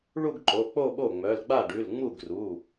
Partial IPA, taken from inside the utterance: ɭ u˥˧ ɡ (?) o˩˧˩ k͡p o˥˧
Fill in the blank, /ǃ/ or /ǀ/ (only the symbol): ǃ